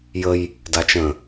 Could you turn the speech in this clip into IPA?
j ə j | d a t͡ʃ ə̃

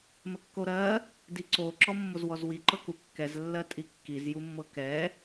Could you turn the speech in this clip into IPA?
m ə kː o ɾ ɜ | d i ǀ o ǁ ɔ mː o z w ɔ z w i ǃ ɤ k u kː ɛ z lː ɜ tʼ i kː i z j u mː ɤ k ɛ

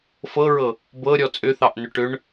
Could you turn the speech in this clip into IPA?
f ɤ ɹ ɤ | b ɤ ɾʲ ɔ t͡sʼ ʏ θ ɑ ʔ n ʏ ʈ ʏ ɳ

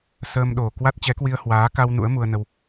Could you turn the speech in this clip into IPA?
s əː˧ m ɗ o˨˩ k w a˦˥ t̚ t͡ɕ ɛ˨˦ k w i˧ ə̯ h w aː˨˦ k a˧ w n ṵ˧˥ ə̯ m u˧ ə̯ n ə˧ w

